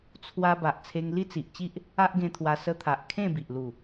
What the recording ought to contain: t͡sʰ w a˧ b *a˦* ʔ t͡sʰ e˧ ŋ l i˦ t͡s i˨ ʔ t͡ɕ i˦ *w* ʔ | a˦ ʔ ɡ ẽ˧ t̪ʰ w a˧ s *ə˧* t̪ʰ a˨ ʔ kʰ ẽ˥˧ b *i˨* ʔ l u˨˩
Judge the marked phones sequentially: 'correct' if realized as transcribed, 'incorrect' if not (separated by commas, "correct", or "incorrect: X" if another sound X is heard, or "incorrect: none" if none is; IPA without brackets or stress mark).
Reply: incorrect: a˨, incorrect: none, correct, correct